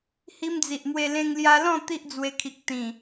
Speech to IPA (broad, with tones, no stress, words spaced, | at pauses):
hi˧md͡zi˨ʔmwe˧ lẽ˧ŋlja˧lɔ̃˥˧ t̪i˦ʔd͡zwe˧kʰi˨k̚ t̪ĩ˨˩